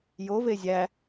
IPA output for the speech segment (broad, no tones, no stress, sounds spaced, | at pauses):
j o v e zʲ æ